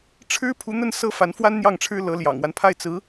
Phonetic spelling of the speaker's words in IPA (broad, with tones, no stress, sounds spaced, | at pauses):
ʈ͡ʂʰ ɻ̩˥ pʰ u˧˥ n̪ ə˥˩ n s ɤ˥ f a˧˥ n f w a˥ n n̪ j ɑ˥˩ ŋ ʈ͡ʂʰ ɻ̩˥ l ɤ˧˥ l j ɑ̰˨˩ ŋ w a˦ n pʰ a˥˩ ɪ̯ t͡s ɹ̩˧˥